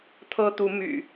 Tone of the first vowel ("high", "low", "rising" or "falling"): high